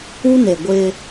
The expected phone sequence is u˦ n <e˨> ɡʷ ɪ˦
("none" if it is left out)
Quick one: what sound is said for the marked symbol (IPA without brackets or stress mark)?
e˨